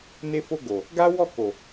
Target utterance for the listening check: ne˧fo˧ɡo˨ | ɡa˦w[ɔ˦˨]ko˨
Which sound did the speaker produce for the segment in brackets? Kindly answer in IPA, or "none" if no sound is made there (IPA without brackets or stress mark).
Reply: ɔ˦˨